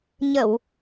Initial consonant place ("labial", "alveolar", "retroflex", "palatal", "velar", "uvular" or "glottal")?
palatal